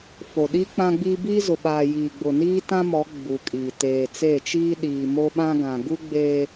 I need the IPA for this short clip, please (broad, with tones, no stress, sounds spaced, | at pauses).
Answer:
f o˨ ɗ i˦ k͡p ã˦ ɡ͡b iː˦ b iː˦ z ʊ˨ ɓ aː˨ j iː˨ ɡ͡b ʊ˨ n iː˦ t ã˦ m ɔ˨˦ ɡ͡b u˨ kʼ iː˨ t eː˨ t͡s eː˦˨ t͡ʃ iː˦ ɗ iː˨ m o˦ ɓ ã˦ ɡ ã˨ ɡ u˦ ɡ͡b eː˦